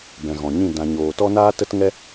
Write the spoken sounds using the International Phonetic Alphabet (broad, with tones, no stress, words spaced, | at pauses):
bɛ̃˨ɣɔ̃˨ɲĩ˦˨ dã˧ɲoː˧ tɔ˦naː˦tə˦tŋɛ˦